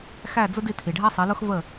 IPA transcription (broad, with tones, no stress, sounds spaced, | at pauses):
x æ˥˩ d͡z ʊ˥ d i˥˩ tʰ i˩ ɖʱ æ˥ sˤ i˩˥ l ʊ˥ x v ə˥˩